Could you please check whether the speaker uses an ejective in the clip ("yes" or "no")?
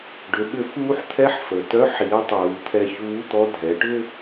no